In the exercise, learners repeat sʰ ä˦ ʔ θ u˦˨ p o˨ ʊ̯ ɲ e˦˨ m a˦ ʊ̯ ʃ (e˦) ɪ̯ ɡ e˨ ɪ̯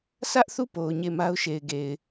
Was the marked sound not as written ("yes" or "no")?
yes